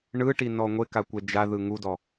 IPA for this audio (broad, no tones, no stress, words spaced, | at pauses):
ɳɯʈinɔ ŋʷekakʷɛ d͡ʒaðɯ ŋudɔ